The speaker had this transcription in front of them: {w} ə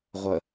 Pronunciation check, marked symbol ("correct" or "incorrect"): incorrect